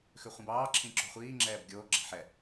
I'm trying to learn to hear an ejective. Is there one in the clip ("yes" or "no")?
no